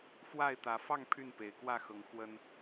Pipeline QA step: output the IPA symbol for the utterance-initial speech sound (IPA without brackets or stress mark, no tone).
f